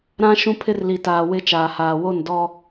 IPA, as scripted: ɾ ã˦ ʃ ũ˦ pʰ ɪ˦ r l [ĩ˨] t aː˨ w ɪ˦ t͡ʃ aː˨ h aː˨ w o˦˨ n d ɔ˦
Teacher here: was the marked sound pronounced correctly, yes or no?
no